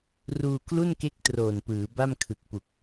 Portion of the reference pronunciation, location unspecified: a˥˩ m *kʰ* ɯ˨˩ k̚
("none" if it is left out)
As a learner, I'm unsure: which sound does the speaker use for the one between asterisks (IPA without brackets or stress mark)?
kʰ